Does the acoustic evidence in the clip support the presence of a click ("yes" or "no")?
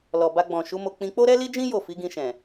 no